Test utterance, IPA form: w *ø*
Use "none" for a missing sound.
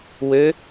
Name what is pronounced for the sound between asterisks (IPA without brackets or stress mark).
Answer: ø